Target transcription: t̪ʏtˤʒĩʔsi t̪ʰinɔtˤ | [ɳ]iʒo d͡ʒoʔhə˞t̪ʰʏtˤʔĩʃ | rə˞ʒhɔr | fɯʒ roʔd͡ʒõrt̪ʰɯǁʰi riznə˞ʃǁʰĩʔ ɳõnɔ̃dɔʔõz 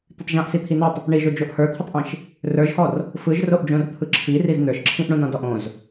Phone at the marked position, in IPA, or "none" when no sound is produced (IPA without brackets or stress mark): ɳ